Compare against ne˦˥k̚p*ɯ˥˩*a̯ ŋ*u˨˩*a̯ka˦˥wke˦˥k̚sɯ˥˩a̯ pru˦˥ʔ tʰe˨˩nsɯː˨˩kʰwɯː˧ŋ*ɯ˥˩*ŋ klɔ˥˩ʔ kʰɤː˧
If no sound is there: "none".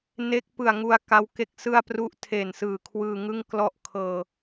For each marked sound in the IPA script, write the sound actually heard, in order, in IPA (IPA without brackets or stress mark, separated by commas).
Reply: ɯ˨˩, u˧, ɯ˥˩